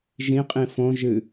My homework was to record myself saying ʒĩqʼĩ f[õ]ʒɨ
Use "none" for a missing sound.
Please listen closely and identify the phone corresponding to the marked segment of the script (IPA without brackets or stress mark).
õ